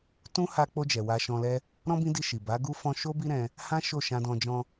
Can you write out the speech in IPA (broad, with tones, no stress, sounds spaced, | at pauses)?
t ũ˦ h a˧ k͡p o˧ d͡ʒ ɛ˨ w a˧ ʃ ɔ̃˧ l ɛ˦ | ɾ ɔ̃˦ b ĩ˦ d i˧ ʃ i˨ b a˨˦ ɡ u˦ f ɔ̃˧ ʃ o˦ b i˦ ɾ ɛ̃˧ | h ã˦ ʃ o˦˨ ʃ ã˧ d ɔ̃˧ d͡ʒ ɔ̃˧